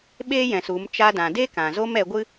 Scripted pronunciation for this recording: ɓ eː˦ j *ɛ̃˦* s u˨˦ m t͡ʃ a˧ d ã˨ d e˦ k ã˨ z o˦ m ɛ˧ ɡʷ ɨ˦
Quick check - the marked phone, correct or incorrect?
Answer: incorrect